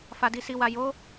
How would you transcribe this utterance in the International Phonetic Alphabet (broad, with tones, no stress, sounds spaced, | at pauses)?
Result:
f a˨ d i˨ s i˨ w a˨ j o˨˦